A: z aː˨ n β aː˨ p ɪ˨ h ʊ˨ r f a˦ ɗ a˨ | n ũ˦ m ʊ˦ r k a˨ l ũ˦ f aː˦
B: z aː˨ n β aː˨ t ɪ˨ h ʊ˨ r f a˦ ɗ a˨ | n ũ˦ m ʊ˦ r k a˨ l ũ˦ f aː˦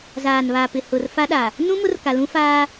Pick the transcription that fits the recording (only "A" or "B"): A